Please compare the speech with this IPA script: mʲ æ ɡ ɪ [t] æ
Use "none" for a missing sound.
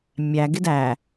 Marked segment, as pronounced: d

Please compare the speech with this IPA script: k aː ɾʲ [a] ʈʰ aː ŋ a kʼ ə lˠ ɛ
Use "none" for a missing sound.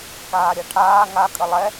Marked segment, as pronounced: a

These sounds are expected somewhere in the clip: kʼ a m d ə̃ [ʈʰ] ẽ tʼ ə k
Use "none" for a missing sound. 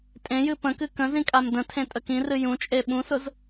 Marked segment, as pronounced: tʰ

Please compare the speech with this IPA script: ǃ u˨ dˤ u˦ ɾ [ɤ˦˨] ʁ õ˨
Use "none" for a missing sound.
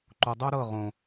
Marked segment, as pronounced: ɤ˦˨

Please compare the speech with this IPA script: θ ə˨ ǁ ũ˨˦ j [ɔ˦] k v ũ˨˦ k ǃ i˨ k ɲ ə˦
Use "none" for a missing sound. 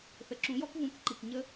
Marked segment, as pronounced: ɔ˦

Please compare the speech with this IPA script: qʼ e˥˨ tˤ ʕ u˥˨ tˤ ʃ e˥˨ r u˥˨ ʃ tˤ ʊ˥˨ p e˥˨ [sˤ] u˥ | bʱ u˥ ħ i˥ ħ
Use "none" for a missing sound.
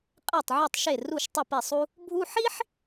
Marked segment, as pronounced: sˤ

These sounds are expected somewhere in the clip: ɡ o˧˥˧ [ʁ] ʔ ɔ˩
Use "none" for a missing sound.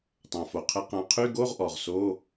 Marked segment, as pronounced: ʁ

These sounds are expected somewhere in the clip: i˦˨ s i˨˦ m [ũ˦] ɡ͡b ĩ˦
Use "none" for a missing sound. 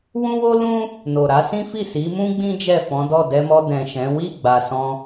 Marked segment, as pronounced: ũ˦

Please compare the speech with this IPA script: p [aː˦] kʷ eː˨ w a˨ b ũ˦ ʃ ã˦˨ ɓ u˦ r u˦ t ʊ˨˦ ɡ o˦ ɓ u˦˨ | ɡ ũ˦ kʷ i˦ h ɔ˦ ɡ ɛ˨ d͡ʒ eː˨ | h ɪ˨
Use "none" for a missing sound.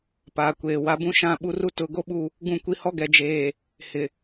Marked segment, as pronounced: aː˨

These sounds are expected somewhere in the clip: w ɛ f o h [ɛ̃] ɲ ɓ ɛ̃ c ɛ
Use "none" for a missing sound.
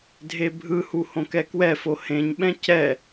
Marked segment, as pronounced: ẽ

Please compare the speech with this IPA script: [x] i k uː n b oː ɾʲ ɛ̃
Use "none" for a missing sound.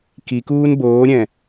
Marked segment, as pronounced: k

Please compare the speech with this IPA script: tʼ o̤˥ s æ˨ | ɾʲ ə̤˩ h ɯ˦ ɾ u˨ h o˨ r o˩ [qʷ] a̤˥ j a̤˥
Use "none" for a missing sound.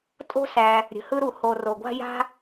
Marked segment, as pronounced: ɡʷ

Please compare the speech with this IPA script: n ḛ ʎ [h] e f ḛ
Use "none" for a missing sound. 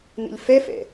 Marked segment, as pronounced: f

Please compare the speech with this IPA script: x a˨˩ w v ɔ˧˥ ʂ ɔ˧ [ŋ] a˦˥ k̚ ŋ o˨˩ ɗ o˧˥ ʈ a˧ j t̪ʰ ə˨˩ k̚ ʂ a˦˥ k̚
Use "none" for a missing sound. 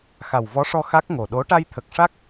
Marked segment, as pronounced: x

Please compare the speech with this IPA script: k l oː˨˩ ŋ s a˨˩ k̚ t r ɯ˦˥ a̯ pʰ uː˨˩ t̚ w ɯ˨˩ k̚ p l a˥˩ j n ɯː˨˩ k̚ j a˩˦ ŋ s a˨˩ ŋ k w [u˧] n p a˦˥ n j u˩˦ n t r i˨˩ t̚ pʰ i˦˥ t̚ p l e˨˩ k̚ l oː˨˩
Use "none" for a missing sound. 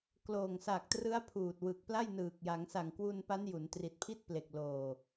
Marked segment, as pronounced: u˧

